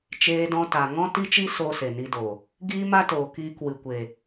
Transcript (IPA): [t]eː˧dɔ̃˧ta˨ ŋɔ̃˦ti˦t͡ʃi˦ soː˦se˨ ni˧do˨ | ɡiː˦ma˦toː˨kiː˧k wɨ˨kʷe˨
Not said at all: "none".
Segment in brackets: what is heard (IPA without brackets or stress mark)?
t͡ʃ